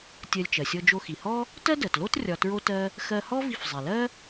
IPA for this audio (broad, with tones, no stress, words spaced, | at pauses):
tʲɜ˧lʲt͡ʃɜ˩ sʲɔ˧d͡ʒo˧xi˩hɔ˥ | tɜ˥dɜ˩tlo˥t rʲɒ˧tɹo˥tɜ˥ | xɜ˧hɔ˥ vi˧fzˤi˩lɜ˥